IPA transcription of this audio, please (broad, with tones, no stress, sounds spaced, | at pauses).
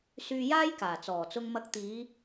s yː˧ j aː˥ j k aː˨˩ t͡s ɔː˨˩ t͡s ʊ˧ ŋ m ɐ˧ k̚ t̪ iː˨˧